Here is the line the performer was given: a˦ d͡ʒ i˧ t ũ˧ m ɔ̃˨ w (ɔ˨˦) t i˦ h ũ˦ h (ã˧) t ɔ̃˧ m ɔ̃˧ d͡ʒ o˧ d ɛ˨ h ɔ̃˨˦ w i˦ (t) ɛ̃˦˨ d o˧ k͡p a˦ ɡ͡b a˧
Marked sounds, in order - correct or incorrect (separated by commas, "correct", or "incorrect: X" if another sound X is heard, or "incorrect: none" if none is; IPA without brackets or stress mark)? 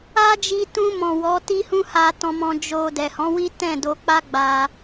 correct, incorrect: a˧, correct